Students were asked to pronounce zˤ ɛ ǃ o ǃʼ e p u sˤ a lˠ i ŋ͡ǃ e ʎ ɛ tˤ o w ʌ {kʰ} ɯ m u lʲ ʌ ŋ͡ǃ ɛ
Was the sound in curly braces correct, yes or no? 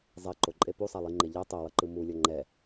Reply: no